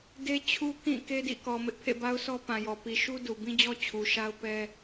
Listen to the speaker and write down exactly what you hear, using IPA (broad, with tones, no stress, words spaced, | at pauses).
de˦t͡ɕʰu˦ kĩ˦˨ ke˦dḭ˦˨kɔ˨mɪ˦ʔ pʰḛ˦˨ba˦ʊ̯sʰɔ˦ pã˨jɔ˨ pi˨ʃu˦ du˨bĩ˦d͡ʑɔ˦ t͡ɕʰu˨ʃa˦ʊ̯pɛ˦